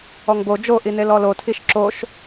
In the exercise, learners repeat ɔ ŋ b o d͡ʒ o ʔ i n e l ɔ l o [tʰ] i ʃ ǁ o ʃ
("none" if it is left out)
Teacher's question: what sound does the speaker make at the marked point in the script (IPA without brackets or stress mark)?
tʰ